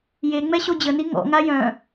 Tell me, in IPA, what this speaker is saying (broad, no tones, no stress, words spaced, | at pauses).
je ŋ͡mɛɕod͡ʑəni ŋɔ̰ŋa jœ̃